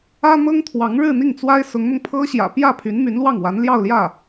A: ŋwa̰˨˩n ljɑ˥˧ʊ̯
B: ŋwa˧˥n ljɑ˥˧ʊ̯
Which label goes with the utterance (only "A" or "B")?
B